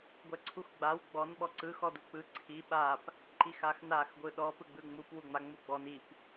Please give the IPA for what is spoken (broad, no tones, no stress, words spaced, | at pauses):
ɡʷɛǀʰuxɡ͡baw ɡ͡bɔn ɓɔǀɯ xɔduk͡pɯ ǀʰi ɓap | ǃixaxnax ɡʷɯɗɔ pɯɡ͡bɯŋ͡mup wuŋ͡ma ŋ͡muɡ͡bɔn ip